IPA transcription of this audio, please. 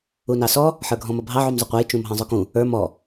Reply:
u n ɑ s ɔ | ħ ə˞ ɡʱ ɔ̃ m ʌ bʱ ɑ ʕ u m zˤ ʊ qʷ ɑ j t͡ʃ ũ m ɦ ɑ̃ zˤ ʊ k ũ | ə˞ m ɔ

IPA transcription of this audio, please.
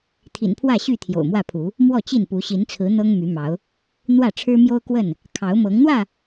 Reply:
t̪ʰ ḭ˨˩ n pʰ w ä˥˨ ɕ y˥˨ t̪ʰ j o̰˨˩ ʊ̯ m w ä˥˨ pʰ u˨˦ | m w ɔ˥˨ t͡ɕ i˥˨ n p u˨˦ ɕ i˨˦ n t͡sʰ ɹ̩˨˦ n̪ ɤ˦ ŋ m y˨˦ m ɑ˨˦ ʊ̯ | n̪ w ä˥˨ ʈ͡ʂʰ ɻ̩˦ m j o˦ ʊ̯ k w ə˥˨ n | kʰ ɑ˨˦ ʊ̯ m ɤ˨˦ ŋ n̪ w ä˥˨

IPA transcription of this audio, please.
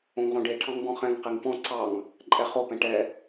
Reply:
õ ŋ ʁ õ ɖ e ʈʰ ɑ̃ ŋ b ɔ̃ χ ɛ̃ ŋ q i ŋ p ɔ̃ ǀ ɑ ŋ | ǃʼ ɛ χ o p ɛ̃ ʈ ɛ

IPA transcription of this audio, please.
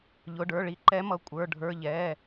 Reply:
ʎ ʊ˩˧˩ ɖ ə˞˩˧˩ ɭ i˨˦ ǃ ɛ˨˦ m ʌ˩˧˩ kʷʼ ə˞˩˧˩ ɖʱ ə˞˩˧˩ ʎ ɛ˩˧˩

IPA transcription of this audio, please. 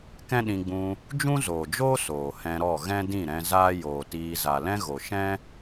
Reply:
k ɛ̃˦ ɗ ĩ˧ ɡ͡b ũ˧ | d͡ʒ ũ˦ z oː˨ d͡ʒ oː˦ s oː˨ h ɛ̃˧ ɾ ɔ˦˨ ɣ ɛ̃˦ d ĩ˦˨ ɾ ɛ̃˧ z aː˦ j oː˨ t iː˧ z a˨ l ɛ̃˦ ɣ o˨ ʃ ɛ̃˦

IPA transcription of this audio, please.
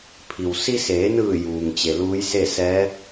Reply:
pʰ i˩ w s i˧ s eː˩˧ n ɯː˧˩ j uː˩ ŋ t͡ɕ e˩ l uː˧˥ j s e˥˨ s ɛː˧˥

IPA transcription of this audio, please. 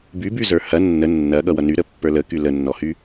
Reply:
b y b y z ə˞ h ɐ nː ə nː ɐ ɠ ʌ w ʌ n y ɾ ə pː ə˞ l ə k y l ə nː ɔ h y

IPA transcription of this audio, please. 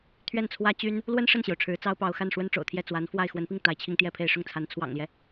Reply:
t̪ʰ ɥ ɛ˥˩ n t͡sʰ w ä˥ t͡ɕ y˥ n | l w ə˥ n ʂ ə˥˩ n ɕ j o˩ ʊ̯ ʈ͡ʂʰ ɻ̩˧˥ t͡s ɑ˥ ʊ̯ p ɑ˧˥ ʊ̯ x a˥˩ n ʂ w ə˥ n ʈ͡ʂ o̰˨˩ ʊ̯ t̪ʰ j ɛ˥˩ t͡s w a˧˥ n f w a˥˩ ɪ̯ x w ə˧˥ n p i˥˩ ŋ t̪ a˧˥ ɪ̯ t͡ɕʰ i˥ ŋ t̪ j ɛ˥˧ pʰ e˥˧ ɪ̯ ʂ ʊ˥˩ ŋ t͡sʰ a˧˥ n t͡sʰ w ɑ̰˨˩ ŋ l j ɛ˦

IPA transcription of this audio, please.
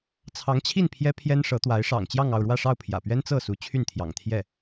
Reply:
t͡sʰ ɑ˧˥ ŋ t͡ɕʰ i˥˩ n pʰ j ɛ˥ pʰ j ɛ˥ n ʂ ɤ˧˥ t̪ w a˧˥ ɪ̯ ʂ ɑ̰˨˩ ŋ t͡ɕ j ɑ˥˧ ŋ ɑ˥˧ ʊ̯ ɻ w ä˥˧ ʂ ɑ˥˩ ʊ̯ pʰ j ä̰˨˩ p ɥ ɛ˥ n t͡s ɤ˥˩ s u˧˥ t͡ɕʰ y˥˩ n t̪ʰ j ɑ̰˨˩ ŋ t̪ʰ j ɛ˥˩

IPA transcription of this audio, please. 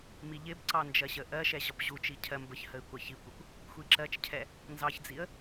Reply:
m i ʎ ɪ b ǀ ɑ n d͡ʒ ɜ ɕ ə ʔ ɜ ʃ ɛ ʑ ɒ p ʑ u t͡ʃ i cʰ ɜ m b ə ç h ə ɪ̯ kʷ ɑ ç i kʷ ɪ kʷ | xʷ i ǁ ɜ t͡ʃ cʰ ɛ | n z ɑ ç d͡z i ə̯

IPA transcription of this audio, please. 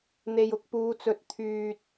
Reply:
n̪ e˨ j ʊ˨ k̚ p uː˨˧ t͡s ɵ˨ t̚ t̪ʰ yː˨ t̚

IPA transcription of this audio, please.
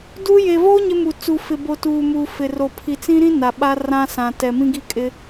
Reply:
d u˦ j e˨ v o˦ ɲ ɪ˦ m u˨ t͡s u˨ f ɪ˨ b o˨ t uː˨ m uː˨ f ɪ˨ r o˨ pʰ i˨ t͡s ĩ˦ ɾ ĩ˦ n a˨ ɓ a˦ r ã˦ s ã˨ t ɛ˨ m ĩ˦ ɡ i˦ kʼ ɪ˦

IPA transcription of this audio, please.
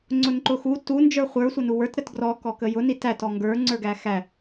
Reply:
ŋ͡ǀ ʊ n ǃ ʊ x u t u n d͡ʒ ə˞ χʷ ə˞ sʷ ʌ n u w ə˞ t ɾ ə t ɡ r ɔ k ɔ k ə j ʊ n i t æ t ɔ ŋ ɡ ə˞ ŋ͡ǀ ə˞ ɡ æ x æ

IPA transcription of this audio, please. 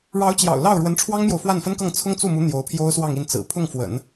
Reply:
ɻ ɑ˧˥ ʊ̯ t͡ɕ j ɑ̰˨˩ ʊ̯ l ɑ˥˩ ʊ̯ ɻ w ə˧˥ n ʈ͡ʂʰ w ɑ˥ ŋ m j o˨ ʊ̯ f w a˥˩ n f ə˥ n k ɤ˥˩ ŋ t͡sʰ ʊ˥ ŋ t͡s u˥˩ m u˧˥ n̪ j o˧˥ ʊ̯ pʰ j o˥ ʊ̯ s w ɑ˥˧ ŋ i˥˩ n t͡s ɹ̩˨˩ pʰ ʊ˥˩ ŋ f w ə̰˨˩˦ n

